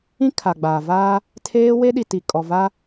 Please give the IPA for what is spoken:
ĩ˦ kʰ a˨ ɡ͡b aː˨ v aː˦ | tʰ eː˦ w e˦ ɗ i˨ t i˨ kʼ ɔ˨ v a˦

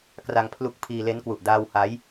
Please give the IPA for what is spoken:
k r a˧ ŋ pʰ l u˦˥ k̚ pʰ iː˧ l e˦˥ n k w u˨˩ ʔ d aː˧ w h a˦˥ j

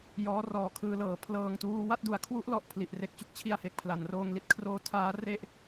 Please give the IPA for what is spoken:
j ɔː˦˥ r ɔː˨˩ kʰ ɯː˧ l ɤː˩˦ pʰ l ɤː˧ ŋ t uː˦˥ w a˥˩ t̚ d u˩˦ a̯ kʰ w u˦˥ ʔ l ɔ˨˩ ʔ pʰ l i˨˩ ʔ r e˨˩ k̚ t͡ɕ u˦˥ k̚ t͡ɕʰ i˥˩ a̯ h e˨˩ k̚ pʰ l a˩˦ n r oː˧ ŋ l i˦˥ t̚ kʰ r oː˦˥ tʰ aː˦˥ r e˥˩ ʔ

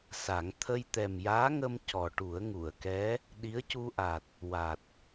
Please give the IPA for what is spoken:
s a˨˩˦ ŋ t̪ʰ ə˧ j t̪ ɛ˨˩ m j aː˧˥ ŋ ə˧ m c ɔ˨˩ ʈ u˨˩˦ ə̯ ŋ u˨˩˨ ə̯ k ɛ˧˥ | ɗ i˧˥ ə̯ c u˧ ʔ a˨˩ t̚ | w a˨˩ t̚

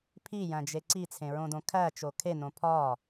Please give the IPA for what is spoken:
pʰ i j æ̃ d͡ʒ e ǀ i t͡sʰ ẽ ɹ õ d õ kʰ æ t͡ʃ o kʰ e n õ pʰ ɒː

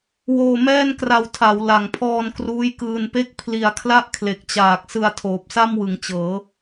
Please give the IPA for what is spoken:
w oː˧ m ɛː˥˩ n k r a˧ w tʰ a˩˦ w l a˨˩ ŋ pʰ ɔː˧ n k r uː˦˥ j k ɯː˧ n p e˥˩ k̚ pʰ l i˩˦ a̯ kʰ l a˥˩ ʔ kʰ l e˨˩ k̚ t͡ɕ aː˨˩ k̚ s ɯ˧ a̯ tʰ oː˨˩ p̚ s a˥˩ m w ɯ˩˦ ŋ t͡ɕ ɤː˩˦

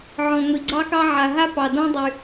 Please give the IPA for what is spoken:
ʕ ɔ̃˨ ŋʷ i˨ ɡ͡ǀ ɑ˥ k ɑ˥ ʕ a˨ ɦ a˥ p ɑ˨ d ɔ̃˦ dˤ y˨

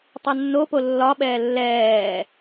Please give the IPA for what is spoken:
tˤ e nː o p o lː ɒ ɓ ɛː lː ɛː

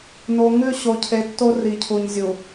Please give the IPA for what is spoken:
n o˨ ŋ ʉ˦˨ ɕ o˨ cʰ e˨ tː o˦ r i˨ cʰ u˨ ɲ zʲ u˨

